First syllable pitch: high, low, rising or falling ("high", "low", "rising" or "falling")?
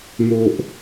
high